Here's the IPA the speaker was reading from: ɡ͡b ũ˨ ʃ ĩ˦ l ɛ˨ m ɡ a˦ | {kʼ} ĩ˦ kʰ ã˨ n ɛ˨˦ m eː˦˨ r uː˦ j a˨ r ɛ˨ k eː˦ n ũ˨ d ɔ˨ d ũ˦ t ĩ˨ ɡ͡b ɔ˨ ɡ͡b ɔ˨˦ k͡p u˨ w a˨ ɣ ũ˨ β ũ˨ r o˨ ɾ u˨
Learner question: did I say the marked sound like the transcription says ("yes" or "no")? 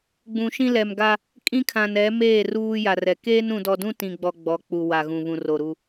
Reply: yes